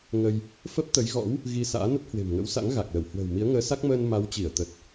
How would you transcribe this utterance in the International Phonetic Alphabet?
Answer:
ŋ ə˧ j | f ə˦˥ p̚ t̪ ə˨˦ j ɣ ɔ̰˧˥ w | ɣ i˧ s a̰ː˧˥ n ə˦˥ t̚ h w e̤˨˩ m ŋ ə̰˧˥ w s a̰˧˥ ŋ ɣ a˨˩ k̚ l ə˧˩ w h w ə̤ː˨˩ w m i˨˦ ə̯ ŋ əː˨˦ s a˦˥ k̚ m əː˧ n m a˨˦ w t͡ɕ i˧˩ ə̯ t̪ ə˨˩ t̚

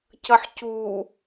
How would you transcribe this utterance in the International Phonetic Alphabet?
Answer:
c ʌ ħ c u

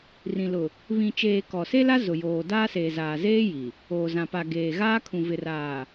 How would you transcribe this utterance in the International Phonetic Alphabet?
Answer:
r ĩ˨ l ʊ˨ | β ĩ˨ t͡ʃ eː˨ k ɔ˨ s e˦ l a˦ z ʊ˨ j oː˨ d aː˦ s eː˨ z aː˨ z eː˦ j i˨ | oː˨ z ã˨ p a˨ ɡ eː˨ ɣ aː˦ kʰ ũ˨ v ɪ˨ r aː˨

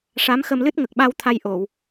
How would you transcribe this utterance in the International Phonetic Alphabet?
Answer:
ʂ a˧˥ m x ə˧ m l ɨ˦˥ t̚ ŋ ə˨˩ k̚ ɓ a˧ w t̪ʰ a˧ j ʔ o˨˩˨ w

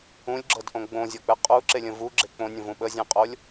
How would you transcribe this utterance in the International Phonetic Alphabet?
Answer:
ũ lʲ ɡ͡ǁ ɤ d ʔ õ ɡ͡b õ zʲ ɔ k͡p ɛ qʼ u ǁ e lʲ ə̃ v u ɡ͡ǁ e k͡p õ nʲ ə̃ v ũ ɓ ə zʲ ɛ̃ qʼ o lʲ

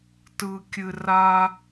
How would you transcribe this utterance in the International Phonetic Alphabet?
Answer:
t ɯ˥ kʲ ɨ˥ r a˥

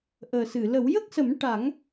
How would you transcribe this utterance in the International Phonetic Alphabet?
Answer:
ʔ əː˨˩ s ɨ˨˩˨ l ə˨˩˦ w j ə˦˥ k̚ s ə˨˩˦ m ʈ a˨˩˦ ŋ

